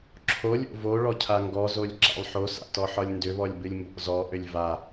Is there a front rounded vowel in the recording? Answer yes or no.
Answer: yes